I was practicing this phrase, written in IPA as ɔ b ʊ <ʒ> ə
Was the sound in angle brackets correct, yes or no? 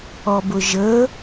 yes